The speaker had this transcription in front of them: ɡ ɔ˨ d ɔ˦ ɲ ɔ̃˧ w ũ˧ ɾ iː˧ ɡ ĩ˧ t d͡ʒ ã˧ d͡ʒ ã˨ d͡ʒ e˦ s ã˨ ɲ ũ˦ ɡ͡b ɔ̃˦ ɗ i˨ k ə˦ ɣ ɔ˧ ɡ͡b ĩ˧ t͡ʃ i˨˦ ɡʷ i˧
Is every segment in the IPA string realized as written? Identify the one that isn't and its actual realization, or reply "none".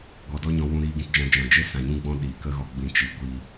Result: none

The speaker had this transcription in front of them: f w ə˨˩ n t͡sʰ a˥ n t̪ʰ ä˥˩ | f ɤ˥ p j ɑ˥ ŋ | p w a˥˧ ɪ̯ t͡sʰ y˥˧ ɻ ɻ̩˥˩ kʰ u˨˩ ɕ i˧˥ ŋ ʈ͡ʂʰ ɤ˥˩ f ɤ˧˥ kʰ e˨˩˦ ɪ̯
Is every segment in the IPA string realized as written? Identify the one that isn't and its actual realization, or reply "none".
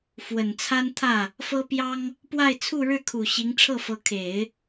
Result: y˥˧ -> u˥˧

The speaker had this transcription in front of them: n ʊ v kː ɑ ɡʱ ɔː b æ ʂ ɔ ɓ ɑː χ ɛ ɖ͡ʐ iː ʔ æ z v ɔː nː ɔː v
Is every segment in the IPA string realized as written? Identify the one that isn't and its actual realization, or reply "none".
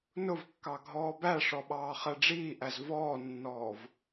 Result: none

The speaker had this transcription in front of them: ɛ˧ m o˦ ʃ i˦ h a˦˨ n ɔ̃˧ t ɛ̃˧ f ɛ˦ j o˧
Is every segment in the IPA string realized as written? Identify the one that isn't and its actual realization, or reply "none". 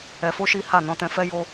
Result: m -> f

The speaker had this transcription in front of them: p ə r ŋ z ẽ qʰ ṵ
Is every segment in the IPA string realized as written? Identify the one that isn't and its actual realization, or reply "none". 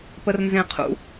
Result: ŋ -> n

